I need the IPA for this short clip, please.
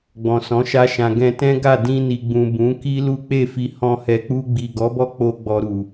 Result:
ɡ͡b ɔ̃˨ s ɔ̃˨˦ ʃ a˦ ʃ ã˧ ɡ ɛ̃˧ t ɛ̃˦ ɡ a˦˨ d ĩ˧ n i˨ ɡ͡b ũ˨ b ũ˨˦ k i˦ l u˦ k͡p e˦˨ f i˧ h ɔ̃˧ h ɛ˨ k͡p u˧ ɡ͡b i˨ ɡ ɔ˨˦ b ɔ˦ k͡p o˧ ɡ͡b ɔ˨ ɾ u˨

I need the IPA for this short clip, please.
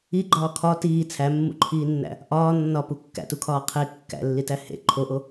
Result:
i ɡ͡ǃ ɒː kʰ ɒ t iː t͡sʰ æ mː ṵ ǃʰ iː nː æ̰ | ʔ ɒː nː ɒ p u kː æ̰ t u kʰ ɒː qʰ e kː æ̰ lː i t æ h ḛ ǃʰ o ʔ o

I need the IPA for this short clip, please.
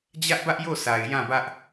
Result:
d͡ʑ ä˦ ʔ b ä˦ ʔ j o˦˨ sʰ a˨ ɪ̯ j ã˦˨ b ä˦ ʔ

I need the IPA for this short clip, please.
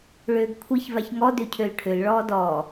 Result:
ɭ øː ɡ kʷʰ i ç v a ç ŋ ɔ d ø cʰ ø l ʈʰ ø l ɭ ɔː d ɔː

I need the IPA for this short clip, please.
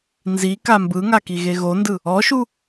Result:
n z i k a m b ɯ ŋ a k i ɣ e ɣ o n d ɯ | ɔ ʃ u

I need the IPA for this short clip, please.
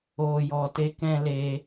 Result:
oː˧ j ɔ˧ t e˦ k ɛ̃˦ l e˦

